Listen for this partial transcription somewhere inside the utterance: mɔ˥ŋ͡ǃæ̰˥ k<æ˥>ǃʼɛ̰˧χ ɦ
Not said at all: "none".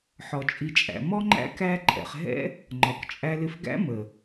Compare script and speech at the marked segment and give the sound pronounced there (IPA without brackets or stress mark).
æ˥